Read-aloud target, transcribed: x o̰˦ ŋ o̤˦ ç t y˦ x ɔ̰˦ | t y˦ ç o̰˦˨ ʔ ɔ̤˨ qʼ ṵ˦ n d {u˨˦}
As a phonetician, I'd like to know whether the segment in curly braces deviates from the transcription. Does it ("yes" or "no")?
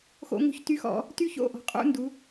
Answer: no